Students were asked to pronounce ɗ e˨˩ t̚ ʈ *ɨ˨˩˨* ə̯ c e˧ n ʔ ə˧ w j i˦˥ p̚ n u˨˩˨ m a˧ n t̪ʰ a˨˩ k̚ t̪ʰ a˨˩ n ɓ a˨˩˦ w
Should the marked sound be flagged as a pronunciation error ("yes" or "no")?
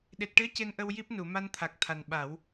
yes